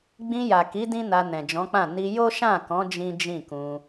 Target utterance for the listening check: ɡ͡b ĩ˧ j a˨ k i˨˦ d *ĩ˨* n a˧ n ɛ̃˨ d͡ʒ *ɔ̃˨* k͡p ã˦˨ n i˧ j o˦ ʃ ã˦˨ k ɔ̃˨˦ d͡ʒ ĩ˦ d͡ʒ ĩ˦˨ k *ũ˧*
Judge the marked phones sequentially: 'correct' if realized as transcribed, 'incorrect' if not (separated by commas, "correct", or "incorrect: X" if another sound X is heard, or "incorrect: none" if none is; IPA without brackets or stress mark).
incorrect: ĩ˦, incorrect: ɔ̃˨˦, correct